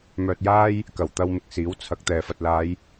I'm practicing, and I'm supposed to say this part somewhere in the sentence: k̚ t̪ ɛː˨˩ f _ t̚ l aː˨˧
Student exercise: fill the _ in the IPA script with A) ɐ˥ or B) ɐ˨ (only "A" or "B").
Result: B